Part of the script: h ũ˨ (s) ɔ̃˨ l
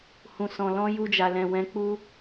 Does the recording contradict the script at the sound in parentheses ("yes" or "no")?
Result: no